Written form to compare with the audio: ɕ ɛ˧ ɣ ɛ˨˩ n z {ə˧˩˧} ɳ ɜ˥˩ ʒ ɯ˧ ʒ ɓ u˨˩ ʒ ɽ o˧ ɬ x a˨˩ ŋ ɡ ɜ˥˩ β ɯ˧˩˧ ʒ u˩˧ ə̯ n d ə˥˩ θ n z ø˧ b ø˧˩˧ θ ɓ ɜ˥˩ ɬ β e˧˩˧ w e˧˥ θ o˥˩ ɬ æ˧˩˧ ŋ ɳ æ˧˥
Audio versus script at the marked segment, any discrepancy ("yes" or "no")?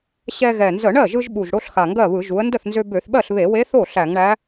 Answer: no